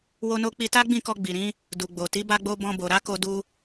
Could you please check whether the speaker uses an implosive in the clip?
no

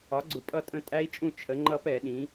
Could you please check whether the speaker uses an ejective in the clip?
yes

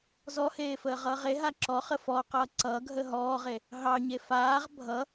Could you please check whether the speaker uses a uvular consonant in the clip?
yes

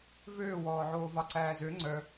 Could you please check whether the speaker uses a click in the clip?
yes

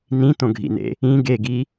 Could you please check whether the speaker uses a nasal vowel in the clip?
yes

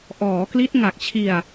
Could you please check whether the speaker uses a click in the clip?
no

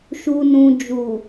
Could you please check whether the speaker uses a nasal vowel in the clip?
yes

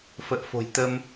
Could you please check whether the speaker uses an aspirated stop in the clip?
no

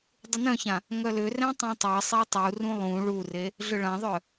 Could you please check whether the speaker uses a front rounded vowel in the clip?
yes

